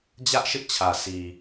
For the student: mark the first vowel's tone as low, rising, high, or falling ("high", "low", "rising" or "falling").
high